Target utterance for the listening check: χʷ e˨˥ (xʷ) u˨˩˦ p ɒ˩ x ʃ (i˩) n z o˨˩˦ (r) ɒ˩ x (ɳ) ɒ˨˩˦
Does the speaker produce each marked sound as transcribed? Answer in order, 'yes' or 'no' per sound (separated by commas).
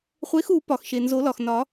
no, no, no, no